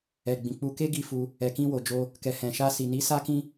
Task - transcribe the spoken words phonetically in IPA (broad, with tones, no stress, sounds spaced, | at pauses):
ɛ˨ ɡ͡b ĩ˨ k͡p u˧ k e˦ ɡ i˧ f u˧ | ɛ˨ k ĩ˧ w o˨ d͡ʒ o˧ | k ɛ˨ h ɛ̃˨ ʃ a˧ s i˨ n i˨˦ s a˦ k ĩ˦